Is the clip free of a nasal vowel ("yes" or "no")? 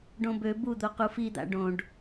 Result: no